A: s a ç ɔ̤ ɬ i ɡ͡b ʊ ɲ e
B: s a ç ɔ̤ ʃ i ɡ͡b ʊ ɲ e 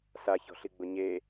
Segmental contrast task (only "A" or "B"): A